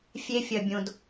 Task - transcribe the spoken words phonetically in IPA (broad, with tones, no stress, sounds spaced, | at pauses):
fʲ e˧ fʲ ɐ˨ bʲ õ˨ d